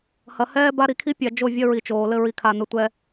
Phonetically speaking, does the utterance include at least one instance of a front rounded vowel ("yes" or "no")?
no